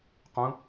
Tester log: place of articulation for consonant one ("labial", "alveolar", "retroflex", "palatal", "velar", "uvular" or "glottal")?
uvular